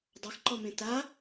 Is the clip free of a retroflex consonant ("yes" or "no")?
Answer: yes